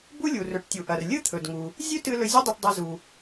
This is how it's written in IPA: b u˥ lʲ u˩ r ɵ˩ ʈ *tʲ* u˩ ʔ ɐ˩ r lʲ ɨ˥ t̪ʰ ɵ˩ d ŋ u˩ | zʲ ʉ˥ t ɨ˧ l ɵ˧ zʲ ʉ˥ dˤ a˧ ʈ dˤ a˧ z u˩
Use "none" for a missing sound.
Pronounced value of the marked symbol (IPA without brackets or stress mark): tʲ